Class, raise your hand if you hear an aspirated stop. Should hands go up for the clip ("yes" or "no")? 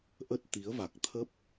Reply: yes